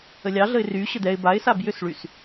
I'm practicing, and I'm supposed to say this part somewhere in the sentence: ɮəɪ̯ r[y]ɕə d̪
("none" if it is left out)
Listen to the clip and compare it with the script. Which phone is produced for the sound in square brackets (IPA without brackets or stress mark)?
y